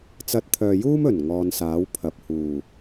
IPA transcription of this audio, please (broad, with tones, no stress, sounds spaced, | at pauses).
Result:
t͡s ɐ˧ t̚ t̪ʰ œː˨ j uː˥ m ɵ˨˩ n ŋ ɔː˧ n s aː˨˥ w pʰ ɐ˨ p̚ h uː˨˩